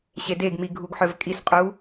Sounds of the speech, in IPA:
ɕ e d e ɡ m i ɡʱ u ɡ ħ œ v kʼ i s qʼ u

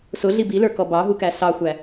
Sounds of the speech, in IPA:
s ʊ ɮ i b i l ə˞ k ɔ b ɑ ɦ u k æ s ɑ xʷ æ

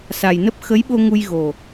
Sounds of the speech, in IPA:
s a˨˩ j n ə˦˥ p̚ x ə˨˦ j ɓ o˧ ŋ u˧ j ɣ o˨˩

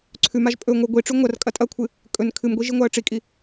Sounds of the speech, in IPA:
ǀʰ ʉ m a ʒ pʼ ɵ ŋʷ ɨ ɡʷ i ʈ͡ʂ ʉ ŋʷ ɐ r kʼ ɐ tʼ ɐ kʷʰ ɨ | kʼ ɵ n kʰ ɨ m ɡʷ i ʒ i ŋʷ a ə̯ ʈ͡ʂ i kʼ i

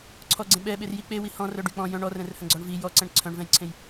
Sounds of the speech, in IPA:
ǀʰ ɔ ɡ͡ǀ ẽ ɓ ɛ ɓ e r j i k͡p e w i h ɔ̃ r œ ɖ y k͡p ɔ̃ j œ̃ ɳ ɔ r ɛ̃ r h œ̃ ɡ͡ǀ ɔ ɳ v i j ɔ ǀ ɛ̃ ɳ ǀʰ œ̃ ɳ v ɛ̃ j ǀʰ ẽ j

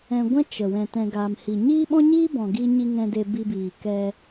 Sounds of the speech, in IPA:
ɛ̃˧ ɡʷ ɛ̃˦ t͡ʃ ə˨ w ɛ̃˧ t ɛ̃˧ ɡ aː˧ m h i˨ ɲ iː˦ ɓ ɔ̃˦ ɲ iː˦ b ɔ̃˨ ɡ iː˧ ɲ i˧ ŋ ɛ̃˧ d e˧ b i˧ b iː˨ k ɛ˧

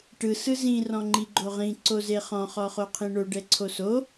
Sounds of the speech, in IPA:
ʈ ɯ s ɯ z ĩ r ɔ̃ ŋ͡ǃ i ɡ͡ǃ o ʁ ĩ ǀ o z e χ ɔ̃ χ ɔ χ o qʰ ĩ ɳ o ɖ ɛ ǀʰ o s o

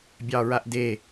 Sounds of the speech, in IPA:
bʲ ɑ ɹ a ʔ d e

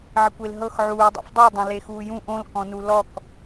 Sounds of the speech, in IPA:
ʕ ɪ kʷ e l ɦ ɤ x ʕ uː dˤ a̰ f dˤ u dˤ õ l e x uː j ũ ʔ õ l k ɔ̃ n u l ɔ k

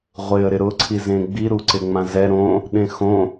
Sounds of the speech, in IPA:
ʁʷ ɪ ə̯ ɾ ɪ ɾ ʊ ǀʰ i z ẽ ɡ͡b i ɾ u ǀ ɪ ŋ͡m ã z ɛ ɾ õ | ɗ ẽ x õ

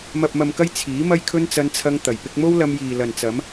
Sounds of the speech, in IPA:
m ɐ˨ p̚ m ɐ˨ m k ɐ˧ j t͡sʰ iː˨˥ m ɐ˧ j kʰ ɵ˧ n t͡s ɐ˧ n t͡sʰ ɐ˧ ŋ t̪ ɐ˨˩ j p ɪ˧ k̚ m o˥ w l ɐ˧ m j iː˨ l ɐ˨ n t͡s ɐ˨˧ m

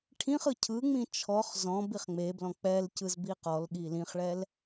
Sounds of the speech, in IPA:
ʈʰ ĩ χ ɯ cʰ ɯ ŋ͡m ĩ t͡ʃʰ ɔ χ z ɔ̃ b i χ ŋ͡m e b l ɔ̃ k͡p ɛ l c ɯ z b i q ɔ l ɠ i l ĩ χ ɭ ɛ l

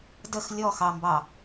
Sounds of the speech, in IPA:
d ə x lʲ ɔ x ɑ m b ɑ

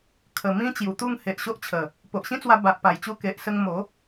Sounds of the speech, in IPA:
kʰ ə˨˩ m ĩ˦ t͡ɕ j u˨˩ t̪ u˥˧ ŋ h e˨ ʔ ɕ o˦ ʔ t͡ɕʰ ə˨˩ | p o˨ ʔ ɕ ĩ˦ t͡s w a˧ b a˨ ʔ p a˨˩ j t͡ɕ u˧ k e˨ ʔ s ə˧ ŋ m o˨˦

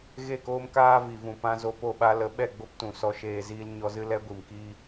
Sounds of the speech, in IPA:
ɣ e˦˨ k oː˦ m k aː˦ v i˨ v ũ˨ p ã˧ z o˧ p o˦˨ ɓ a˦ l ə˨˦ ɓ ɛ˦˨ ɡ͡b o˦ p t ũ˨ s ɔ˧ ʃ eː˧ z iː˦ l ɲ ɔ˧ z ɨ˦ l ɛ˦ ɡʷ i˨ m k i˦

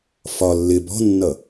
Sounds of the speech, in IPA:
f ɒ lː ɪ b ɔ̤ nː ʌ

